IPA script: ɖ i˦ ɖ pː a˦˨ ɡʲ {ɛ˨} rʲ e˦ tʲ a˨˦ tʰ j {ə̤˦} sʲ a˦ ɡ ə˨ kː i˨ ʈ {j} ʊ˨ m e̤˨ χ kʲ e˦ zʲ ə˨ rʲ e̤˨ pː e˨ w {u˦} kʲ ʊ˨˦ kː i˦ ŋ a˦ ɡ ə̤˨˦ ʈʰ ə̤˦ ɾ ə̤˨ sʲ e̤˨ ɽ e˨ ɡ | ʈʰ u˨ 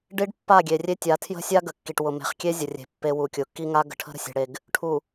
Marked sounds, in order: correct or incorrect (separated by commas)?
incorrect, correct, incorrect, incorrect